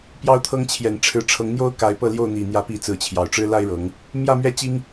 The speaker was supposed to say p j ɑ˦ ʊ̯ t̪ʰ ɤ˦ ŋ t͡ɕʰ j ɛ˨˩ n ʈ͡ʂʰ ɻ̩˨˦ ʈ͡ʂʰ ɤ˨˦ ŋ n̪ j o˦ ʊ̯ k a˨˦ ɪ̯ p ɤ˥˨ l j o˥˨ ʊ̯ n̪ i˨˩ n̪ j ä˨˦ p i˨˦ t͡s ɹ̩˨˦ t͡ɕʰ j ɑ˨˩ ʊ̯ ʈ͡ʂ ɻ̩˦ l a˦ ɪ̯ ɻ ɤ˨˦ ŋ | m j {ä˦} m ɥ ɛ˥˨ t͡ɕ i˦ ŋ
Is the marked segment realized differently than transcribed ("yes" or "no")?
yes